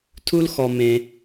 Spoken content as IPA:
tʰ u˦ l x ɔ˨ m ẽ˦

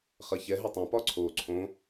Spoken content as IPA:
χ ɐ ç ɛ ɦ ə tˤ ɐ̃ p ɒ ǀʰ o ǀʰ õ

